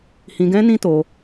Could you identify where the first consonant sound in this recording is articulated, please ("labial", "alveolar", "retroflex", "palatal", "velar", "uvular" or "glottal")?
glottal